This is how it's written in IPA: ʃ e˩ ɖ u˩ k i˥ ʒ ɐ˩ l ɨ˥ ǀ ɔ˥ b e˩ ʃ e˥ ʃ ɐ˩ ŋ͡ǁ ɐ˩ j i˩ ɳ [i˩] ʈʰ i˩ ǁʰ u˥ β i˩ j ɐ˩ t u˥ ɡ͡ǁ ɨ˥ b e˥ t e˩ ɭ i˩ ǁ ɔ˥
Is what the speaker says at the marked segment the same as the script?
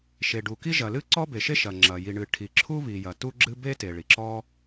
no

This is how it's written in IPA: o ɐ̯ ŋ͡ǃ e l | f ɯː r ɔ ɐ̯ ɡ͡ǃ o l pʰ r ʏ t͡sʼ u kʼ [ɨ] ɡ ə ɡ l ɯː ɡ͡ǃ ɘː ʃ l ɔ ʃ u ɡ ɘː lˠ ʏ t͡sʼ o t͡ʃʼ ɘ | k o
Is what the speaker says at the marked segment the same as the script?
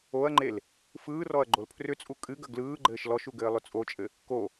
yes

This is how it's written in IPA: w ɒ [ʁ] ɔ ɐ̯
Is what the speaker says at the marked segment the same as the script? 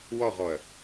yes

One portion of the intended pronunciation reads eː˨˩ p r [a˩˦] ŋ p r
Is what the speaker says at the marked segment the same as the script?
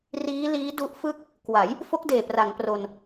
yes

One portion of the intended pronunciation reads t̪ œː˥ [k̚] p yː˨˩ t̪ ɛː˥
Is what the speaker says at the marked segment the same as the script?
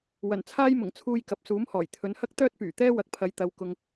no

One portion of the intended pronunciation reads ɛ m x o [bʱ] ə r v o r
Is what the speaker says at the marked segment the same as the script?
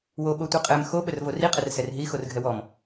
no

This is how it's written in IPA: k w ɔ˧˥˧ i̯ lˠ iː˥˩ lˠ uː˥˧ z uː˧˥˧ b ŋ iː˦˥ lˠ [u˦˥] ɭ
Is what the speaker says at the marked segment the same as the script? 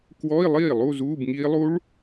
yes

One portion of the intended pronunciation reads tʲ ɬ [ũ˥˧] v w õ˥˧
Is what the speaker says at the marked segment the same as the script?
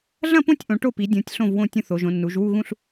no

